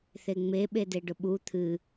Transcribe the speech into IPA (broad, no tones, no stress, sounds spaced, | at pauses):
θ e ŋ͡m e ɓ e d e ɖ ʊ ɓ u t̪ʰ ɨ